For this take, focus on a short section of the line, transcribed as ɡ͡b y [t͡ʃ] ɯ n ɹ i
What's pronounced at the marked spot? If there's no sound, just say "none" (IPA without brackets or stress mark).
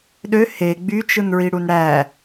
t͡ʃ